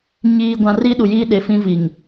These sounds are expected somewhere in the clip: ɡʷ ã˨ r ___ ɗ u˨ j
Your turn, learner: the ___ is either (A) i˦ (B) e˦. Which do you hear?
A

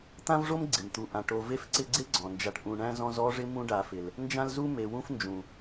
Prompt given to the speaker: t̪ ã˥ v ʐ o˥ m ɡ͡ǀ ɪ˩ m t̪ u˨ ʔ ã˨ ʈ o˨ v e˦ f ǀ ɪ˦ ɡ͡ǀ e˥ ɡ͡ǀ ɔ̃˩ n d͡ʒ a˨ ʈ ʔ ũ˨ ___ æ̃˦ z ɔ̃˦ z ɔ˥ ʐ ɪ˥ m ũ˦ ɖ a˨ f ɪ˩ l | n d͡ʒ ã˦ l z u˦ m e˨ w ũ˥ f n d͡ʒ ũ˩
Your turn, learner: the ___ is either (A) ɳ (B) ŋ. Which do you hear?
A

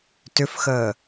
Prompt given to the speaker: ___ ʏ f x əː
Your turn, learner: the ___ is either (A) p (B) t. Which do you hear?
B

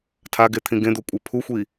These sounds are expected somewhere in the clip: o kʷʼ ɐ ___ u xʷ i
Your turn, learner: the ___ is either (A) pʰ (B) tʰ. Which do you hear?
A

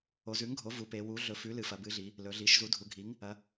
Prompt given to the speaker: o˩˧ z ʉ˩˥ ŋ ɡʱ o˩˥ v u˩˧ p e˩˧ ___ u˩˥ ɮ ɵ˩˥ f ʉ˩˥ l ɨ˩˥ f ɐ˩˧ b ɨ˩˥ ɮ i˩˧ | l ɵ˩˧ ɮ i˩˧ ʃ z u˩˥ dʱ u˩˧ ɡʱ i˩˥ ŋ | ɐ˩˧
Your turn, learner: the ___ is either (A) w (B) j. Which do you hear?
A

